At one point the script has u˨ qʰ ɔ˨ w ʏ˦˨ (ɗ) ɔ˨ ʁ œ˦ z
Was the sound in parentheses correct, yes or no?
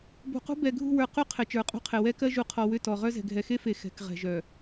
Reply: no